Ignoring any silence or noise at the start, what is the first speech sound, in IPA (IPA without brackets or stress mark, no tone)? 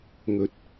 ŋ